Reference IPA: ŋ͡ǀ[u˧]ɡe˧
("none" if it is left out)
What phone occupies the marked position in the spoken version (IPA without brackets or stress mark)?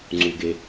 u˧